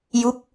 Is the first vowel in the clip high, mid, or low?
high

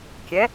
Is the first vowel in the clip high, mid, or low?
mid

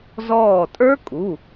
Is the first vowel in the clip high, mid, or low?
mid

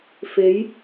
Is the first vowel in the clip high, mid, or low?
mid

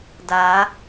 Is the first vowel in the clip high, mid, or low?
low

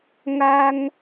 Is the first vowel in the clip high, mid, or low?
low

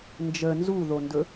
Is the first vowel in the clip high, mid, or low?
mid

